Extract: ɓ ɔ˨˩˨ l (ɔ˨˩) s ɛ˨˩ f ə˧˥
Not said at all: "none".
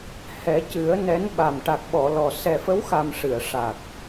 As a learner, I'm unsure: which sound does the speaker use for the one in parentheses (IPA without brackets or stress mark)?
ɔ˨˩